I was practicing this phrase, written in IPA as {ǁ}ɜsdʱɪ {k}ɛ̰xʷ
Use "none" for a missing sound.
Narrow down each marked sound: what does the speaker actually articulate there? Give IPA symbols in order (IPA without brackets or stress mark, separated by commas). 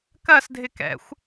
k, k